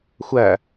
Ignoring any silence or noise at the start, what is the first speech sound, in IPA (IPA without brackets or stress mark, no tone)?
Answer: xʷ